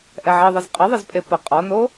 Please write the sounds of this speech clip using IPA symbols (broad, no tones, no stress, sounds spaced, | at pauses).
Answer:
ʔ ɛ ʕ i ðˤ ɘ z qʼ ɘ ðˤ ɘ z pʼ e p ɐ qʼ ɔ n o